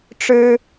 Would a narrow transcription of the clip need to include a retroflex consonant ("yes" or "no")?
yes